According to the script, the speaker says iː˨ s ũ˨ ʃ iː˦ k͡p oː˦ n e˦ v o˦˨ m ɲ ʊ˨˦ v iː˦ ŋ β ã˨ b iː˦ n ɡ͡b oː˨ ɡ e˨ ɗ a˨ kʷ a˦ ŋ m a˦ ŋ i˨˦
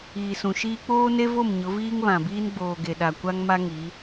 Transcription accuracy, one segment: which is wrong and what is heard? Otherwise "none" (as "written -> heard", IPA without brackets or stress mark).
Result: none